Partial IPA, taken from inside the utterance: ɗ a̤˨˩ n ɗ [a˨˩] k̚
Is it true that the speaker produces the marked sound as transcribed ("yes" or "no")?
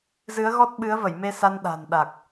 yes